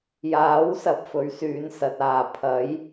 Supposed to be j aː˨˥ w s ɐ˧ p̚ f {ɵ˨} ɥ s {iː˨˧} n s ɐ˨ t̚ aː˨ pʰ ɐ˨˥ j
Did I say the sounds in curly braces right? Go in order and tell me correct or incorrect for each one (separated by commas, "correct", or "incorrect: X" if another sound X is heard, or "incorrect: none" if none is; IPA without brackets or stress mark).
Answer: incorrect: ɵ˨˥, incorrect: yː˨˧